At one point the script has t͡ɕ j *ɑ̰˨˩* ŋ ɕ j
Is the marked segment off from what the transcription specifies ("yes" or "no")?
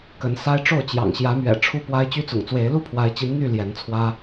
no